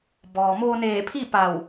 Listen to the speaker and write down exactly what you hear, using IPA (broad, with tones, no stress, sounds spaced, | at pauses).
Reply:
b ɔː˩ m oː˧ n eː˧˩ pʰ i˥˨ p a˧˩ w